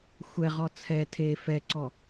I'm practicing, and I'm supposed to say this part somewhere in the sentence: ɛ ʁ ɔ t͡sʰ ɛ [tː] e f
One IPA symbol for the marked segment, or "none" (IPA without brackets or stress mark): tʰ